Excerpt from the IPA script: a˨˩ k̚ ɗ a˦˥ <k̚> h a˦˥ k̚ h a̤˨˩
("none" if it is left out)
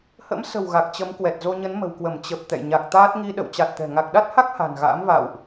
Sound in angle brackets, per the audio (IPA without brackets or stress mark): t̚